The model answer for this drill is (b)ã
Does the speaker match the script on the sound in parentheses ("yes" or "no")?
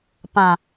no